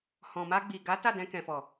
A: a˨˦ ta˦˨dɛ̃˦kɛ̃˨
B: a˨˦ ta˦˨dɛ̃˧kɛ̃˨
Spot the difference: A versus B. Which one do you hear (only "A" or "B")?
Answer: B